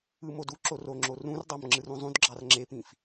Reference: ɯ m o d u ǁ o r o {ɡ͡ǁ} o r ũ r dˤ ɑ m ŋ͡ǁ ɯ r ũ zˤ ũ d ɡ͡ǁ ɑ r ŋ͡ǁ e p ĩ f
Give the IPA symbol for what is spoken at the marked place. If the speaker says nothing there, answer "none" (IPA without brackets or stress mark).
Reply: ŋ͡ǁ